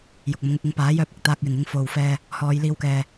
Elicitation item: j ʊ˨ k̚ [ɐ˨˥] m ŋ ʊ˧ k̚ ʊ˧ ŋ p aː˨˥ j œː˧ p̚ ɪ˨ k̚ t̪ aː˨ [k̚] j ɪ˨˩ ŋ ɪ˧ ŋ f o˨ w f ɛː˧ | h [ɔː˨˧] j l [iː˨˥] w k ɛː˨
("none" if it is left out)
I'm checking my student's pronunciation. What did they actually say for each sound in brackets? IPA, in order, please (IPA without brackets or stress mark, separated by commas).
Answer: ɐ˨˥, k̚, ɔː˨˧, iː˧